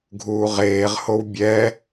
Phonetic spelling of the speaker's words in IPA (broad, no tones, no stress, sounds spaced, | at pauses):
ɡʱ uː ʁ eː ʁ h o w bʲ ɛ